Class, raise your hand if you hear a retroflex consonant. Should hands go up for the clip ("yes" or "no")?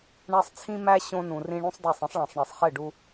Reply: yes